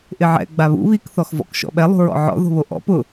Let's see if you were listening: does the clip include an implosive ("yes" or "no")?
yes